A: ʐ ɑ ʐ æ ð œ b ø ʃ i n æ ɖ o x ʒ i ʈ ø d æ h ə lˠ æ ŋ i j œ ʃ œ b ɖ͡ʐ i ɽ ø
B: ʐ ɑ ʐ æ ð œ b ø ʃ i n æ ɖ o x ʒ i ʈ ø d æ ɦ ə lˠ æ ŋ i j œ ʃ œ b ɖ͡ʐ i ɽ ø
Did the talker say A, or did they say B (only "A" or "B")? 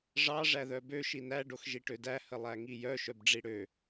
A